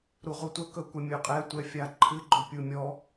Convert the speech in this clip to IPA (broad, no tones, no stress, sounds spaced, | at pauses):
ɾ u ʁ u tʷ ə k ɵ kʷ ə mʲ ɵ qʼ ɛ tʷ ɛ fʲ a ǃʰ ɨ ɡ͡ǃ ɵ pʲ u mʲ ɔ